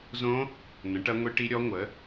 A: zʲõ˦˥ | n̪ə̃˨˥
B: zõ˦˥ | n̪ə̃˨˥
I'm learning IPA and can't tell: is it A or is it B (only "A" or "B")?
B